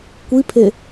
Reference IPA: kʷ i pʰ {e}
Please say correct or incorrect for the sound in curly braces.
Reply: correct